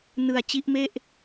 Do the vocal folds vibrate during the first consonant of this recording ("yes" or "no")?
yes